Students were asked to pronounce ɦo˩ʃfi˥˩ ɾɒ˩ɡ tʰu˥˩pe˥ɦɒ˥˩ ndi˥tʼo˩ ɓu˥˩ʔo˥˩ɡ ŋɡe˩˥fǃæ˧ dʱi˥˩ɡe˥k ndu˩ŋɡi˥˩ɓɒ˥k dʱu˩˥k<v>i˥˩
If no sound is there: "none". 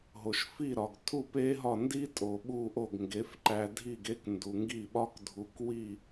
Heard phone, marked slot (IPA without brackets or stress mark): w